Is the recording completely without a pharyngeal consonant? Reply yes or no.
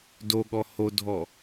yes